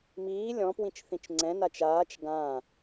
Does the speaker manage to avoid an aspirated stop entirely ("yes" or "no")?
yes